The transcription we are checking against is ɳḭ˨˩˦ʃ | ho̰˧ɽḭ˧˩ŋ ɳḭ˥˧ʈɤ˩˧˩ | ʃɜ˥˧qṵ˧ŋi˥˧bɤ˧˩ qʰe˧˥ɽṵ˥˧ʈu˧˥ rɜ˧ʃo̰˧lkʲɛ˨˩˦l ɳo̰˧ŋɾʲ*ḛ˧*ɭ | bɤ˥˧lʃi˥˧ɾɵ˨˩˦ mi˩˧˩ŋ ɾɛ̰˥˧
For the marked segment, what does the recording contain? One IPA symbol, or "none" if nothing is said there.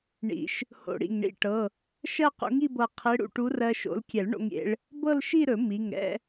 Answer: ḛ˧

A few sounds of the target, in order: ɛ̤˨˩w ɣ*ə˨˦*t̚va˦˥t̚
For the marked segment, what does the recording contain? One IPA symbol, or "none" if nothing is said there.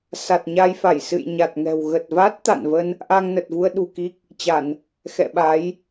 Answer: ə˨˩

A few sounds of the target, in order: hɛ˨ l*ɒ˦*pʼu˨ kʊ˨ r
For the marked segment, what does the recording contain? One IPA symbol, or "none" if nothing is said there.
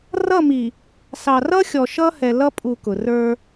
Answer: ʌ˦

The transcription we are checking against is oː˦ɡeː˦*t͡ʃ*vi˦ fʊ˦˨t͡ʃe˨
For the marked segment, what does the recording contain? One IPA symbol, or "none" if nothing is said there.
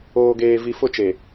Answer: none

